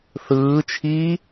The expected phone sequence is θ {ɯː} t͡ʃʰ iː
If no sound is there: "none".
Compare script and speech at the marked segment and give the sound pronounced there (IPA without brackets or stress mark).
ɯː